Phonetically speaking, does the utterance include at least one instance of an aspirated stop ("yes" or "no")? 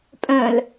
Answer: no